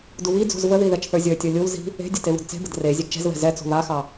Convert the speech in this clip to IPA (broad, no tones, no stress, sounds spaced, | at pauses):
d u β i d͡z ṳ z v ə ð i ð ɛ t͡ʃ θ ə˞ zʲ ə˞ tʲ ə˞ lʲ u l z i̤ | e̤ dʲ ə t e β ṳ d t͡s e̤ b ə d r e zʲ ɛ ɡ t͡ʃ ɛ̤ z β ɛ̤ z ɛ t͡s ṳ β a x ɑ